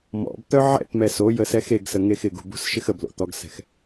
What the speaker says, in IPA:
mɔ̰bt̪œ ʕɛ̰tmɛ so jəsɛxeɡsə ŋexɪɡṳ bṳsʃɪxəblo̰ t̪ɔɡsɛ̤x

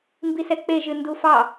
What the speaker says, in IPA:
mbisɛk͡peʒɨ ndufɑ

